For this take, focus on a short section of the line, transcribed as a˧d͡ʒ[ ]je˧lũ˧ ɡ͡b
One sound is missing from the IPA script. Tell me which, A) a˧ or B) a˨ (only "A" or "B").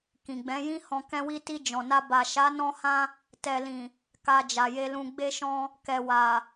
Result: B